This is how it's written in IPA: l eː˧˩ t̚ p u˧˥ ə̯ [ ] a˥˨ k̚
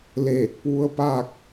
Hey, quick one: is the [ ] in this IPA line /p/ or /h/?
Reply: p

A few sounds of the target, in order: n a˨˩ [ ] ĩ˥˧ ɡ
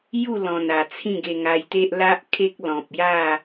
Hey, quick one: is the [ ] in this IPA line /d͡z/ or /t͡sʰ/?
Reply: t͡sʰ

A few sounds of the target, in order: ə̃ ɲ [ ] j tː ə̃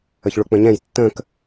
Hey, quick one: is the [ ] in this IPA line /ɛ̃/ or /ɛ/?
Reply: ɛ̃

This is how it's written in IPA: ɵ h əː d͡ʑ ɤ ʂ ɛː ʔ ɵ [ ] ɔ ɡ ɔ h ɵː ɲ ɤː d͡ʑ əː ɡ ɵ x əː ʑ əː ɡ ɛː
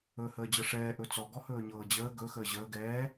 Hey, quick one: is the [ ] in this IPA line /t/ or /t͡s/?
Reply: t͡s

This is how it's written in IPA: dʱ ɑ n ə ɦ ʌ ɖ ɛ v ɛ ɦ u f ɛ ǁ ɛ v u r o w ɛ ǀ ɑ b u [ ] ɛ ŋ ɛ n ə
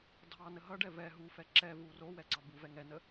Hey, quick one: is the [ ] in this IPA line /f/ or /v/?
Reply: v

